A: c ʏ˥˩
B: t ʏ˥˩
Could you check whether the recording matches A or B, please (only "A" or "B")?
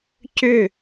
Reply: A